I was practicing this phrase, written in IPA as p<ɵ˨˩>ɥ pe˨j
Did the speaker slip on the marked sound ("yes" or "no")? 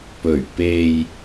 no